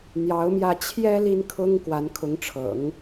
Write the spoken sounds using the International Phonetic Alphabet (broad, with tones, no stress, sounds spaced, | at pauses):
n̪ j ɑ˧˥ ʊ̯ m j ä˥˩ t͡ɕʰ j ɛ˥ l i˥ n kʰ ʊ˥ ŋ k w a˧˥ n kʰ ʊ˧˥ ŋ ʈ͡ʂʰ ɤ̰˨˩˦ ŋ